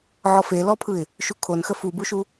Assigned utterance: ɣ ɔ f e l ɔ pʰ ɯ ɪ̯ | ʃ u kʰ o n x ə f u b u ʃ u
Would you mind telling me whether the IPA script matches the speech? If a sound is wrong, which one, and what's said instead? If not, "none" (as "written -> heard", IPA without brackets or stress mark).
ɣ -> ʕ